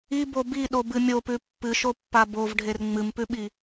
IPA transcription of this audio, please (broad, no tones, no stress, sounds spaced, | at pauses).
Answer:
i b o b i ɗ o b ɨ mʲ o p ʉ pː ɨ ʃ o pː a b o v ɖʱ e r ŋ͡m ɨ m p ʉ ɓ i